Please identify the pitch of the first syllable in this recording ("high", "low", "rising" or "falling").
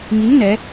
rising